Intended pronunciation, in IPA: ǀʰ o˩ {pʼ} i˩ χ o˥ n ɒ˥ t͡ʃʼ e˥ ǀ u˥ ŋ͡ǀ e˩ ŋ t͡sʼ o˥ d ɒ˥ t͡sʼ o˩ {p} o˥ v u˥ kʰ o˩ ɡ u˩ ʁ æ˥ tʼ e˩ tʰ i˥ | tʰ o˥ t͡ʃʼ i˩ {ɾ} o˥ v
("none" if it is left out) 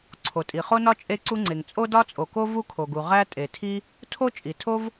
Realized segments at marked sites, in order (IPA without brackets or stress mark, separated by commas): tʼ, k, tʰ